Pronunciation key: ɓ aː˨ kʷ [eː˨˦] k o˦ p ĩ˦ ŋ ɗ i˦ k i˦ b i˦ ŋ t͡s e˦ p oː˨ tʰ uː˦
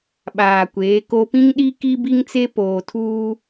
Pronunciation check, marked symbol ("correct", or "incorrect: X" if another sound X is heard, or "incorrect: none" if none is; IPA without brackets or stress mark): correct